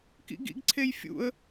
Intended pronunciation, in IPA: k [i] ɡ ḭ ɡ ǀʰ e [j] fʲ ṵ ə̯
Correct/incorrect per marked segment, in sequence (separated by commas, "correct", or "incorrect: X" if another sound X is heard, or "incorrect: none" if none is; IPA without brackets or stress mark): incorrect: ḭ, correct